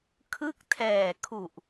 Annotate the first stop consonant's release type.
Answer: aspirated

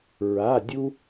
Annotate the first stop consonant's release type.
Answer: plain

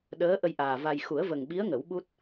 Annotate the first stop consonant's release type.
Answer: implosive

